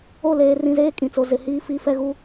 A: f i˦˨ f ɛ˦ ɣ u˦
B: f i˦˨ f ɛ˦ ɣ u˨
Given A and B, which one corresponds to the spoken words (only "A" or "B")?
A